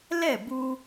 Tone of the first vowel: falling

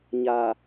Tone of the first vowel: low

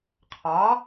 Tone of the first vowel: rising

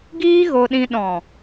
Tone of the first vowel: high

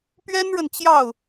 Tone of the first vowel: high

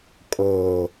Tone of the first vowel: low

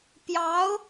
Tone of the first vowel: rising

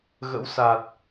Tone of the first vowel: rising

